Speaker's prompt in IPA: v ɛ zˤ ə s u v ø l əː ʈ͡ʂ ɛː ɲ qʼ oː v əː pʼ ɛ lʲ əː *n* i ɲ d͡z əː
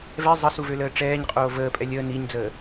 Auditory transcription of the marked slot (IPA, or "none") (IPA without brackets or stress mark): n